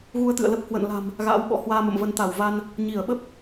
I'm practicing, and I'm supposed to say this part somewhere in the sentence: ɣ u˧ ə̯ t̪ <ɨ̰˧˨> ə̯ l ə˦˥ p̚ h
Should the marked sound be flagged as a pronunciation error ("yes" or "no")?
no